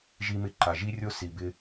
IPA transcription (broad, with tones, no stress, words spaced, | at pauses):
ʒi˧mɪ˧ǃa˩ʒi˥ rʲo˥si˩bɪ˧